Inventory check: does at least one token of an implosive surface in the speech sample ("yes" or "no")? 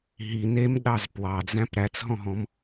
yes